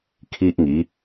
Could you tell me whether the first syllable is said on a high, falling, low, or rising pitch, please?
high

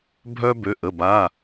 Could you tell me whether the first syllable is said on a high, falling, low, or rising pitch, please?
high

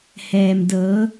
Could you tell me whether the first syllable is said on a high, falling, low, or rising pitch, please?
low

